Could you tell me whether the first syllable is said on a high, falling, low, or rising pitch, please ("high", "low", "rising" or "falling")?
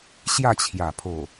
falling